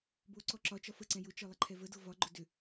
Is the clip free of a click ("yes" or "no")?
no